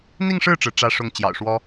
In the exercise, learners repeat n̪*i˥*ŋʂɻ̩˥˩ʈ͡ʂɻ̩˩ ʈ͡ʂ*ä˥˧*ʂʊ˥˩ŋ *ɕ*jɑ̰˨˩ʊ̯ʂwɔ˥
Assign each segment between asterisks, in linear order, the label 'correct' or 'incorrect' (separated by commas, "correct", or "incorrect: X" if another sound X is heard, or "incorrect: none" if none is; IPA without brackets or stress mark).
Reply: incorrect: i˥˧, correct, incorrect: t͡ɕ